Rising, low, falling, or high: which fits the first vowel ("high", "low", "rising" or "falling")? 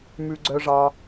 low